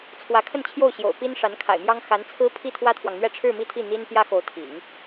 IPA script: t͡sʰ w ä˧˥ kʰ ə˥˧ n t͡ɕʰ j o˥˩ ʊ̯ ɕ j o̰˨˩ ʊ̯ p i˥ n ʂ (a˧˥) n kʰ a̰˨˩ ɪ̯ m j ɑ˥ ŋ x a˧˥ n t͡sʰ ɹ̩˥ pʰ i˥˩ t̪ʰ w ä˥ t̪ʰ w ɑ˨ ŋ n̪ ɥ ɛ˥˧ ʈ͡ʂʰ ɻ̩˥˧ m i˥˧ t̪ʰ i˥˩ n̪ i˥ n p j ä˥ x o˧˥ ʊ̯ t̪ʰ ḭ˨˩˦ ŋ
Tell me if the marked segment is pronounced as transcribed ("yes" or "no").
yes